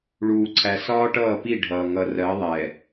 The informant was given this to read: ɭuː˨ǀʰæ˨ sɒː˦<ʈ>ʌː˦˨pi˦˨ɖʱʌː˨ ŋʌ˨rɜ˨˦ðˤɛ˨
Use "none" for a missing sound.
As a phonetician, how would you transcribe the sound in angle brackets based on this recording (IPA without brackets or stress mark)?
ʈ